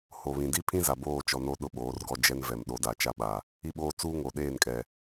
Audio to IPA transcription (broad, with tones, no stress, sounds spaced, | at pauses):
h o˨ β ĩ˨ d i˦ pʰ ĩ˦ z a˨ b oː˦˨ t͡ʃ ɔ˨ n o˦ ɗ ʊ˦ ɓ oː˨˦ r ɡ ɔ˦ d͡ʒ ɛ˦ n v ɛ˨ m ɗ o˨˦ d a˨ t͡ʃ a˦ ɓ a˨ | i˦ ɓ oː˦ t͡s uː˦ ŋ o˨ ɗ eː˦˨ n kʼ ɛ˨